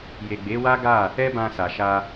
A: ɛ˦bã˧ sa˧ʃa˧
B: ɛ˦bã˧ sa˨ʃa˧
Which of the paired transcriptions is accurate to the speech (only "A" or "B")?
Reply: B